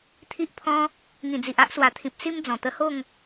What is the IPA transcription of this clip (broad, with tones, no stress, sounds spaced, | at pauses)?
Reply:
t̪ʰ i˦ ʔ pʰ ɔ̃˦ | ŋ ĩ˨˩ d͡z i˨ ʔ a˦ ʔ s w a˨˩ t̪ʰ ĩ˨ p̚ s i˦ m d͡z ɔ̃˨˩ t̪ ə˧ h o˥˧ ŋ